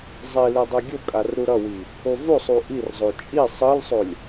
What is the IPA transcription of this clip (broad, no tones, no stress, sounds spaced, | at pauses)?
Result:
zˤ i l e dˤ e ɡʲ o kʼ a r ɾ u ɾ ʌ w i | o v o sˤ u ʔ i r zˤ o t͡ʃʼ i sˤ ɯ l sˤ o lʲ